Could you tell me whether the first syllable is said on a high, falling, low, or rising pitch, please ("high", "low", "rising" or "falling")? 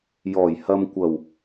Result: low